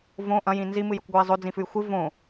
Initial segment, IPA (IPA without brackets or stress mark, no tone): v